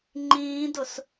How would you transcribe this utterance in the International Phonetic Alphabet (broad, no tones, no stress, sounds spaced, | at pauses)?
ŋ͡ǃ ĩː d ʊ s